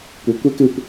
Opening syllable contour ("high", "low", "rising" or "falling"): rising